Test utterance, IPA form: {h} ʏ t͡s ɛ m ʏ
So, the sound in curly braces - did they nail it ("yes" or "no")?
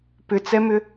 no